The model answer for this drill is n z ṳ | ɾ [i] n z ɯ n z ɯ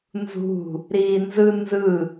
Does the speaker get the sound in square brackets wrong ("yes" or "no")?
yes